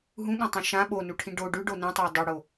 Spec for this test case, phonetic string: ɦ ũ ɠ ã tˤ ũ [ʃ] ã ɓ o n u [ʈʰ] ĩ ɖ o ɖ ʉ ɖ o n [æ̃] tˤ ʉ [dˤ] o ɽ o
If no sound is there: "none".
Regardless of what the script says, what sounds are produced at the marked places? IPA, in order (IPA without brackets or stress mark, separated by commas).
ʃ, ʈʰ, ɛ̃, dˤ